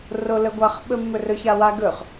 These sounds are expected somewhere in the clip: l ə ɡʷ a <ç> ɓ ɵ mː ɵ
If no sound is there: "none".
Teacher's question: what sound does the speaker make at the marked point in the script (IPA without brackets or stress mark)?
χ